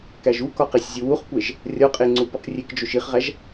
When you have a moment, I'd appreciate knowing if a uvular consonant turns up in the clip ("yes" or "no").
yes